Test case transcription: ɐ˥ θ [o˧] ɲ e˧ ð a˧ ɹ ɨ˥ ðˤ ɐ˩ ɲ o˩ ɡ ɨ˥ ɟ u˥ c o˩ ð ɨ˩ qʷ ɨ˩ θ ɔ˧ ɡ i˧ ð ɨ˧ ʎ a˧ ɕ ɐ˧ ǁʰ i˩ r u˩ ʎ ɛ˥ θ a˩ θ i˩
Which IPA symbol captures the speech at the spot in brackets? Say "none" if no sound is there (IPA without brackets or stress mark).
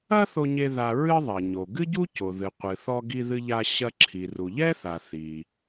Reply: o˧